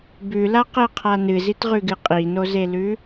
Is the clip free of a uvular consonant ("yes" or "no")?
no